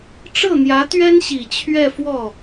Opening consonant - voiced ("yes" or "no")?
no